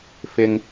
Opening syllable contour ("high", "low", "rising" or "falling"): low